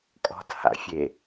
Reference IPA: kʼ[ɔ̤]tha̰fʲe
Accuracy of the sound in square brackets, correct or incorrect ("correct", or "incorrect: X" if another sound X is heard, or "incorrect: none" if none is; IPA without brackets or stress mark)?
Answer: correct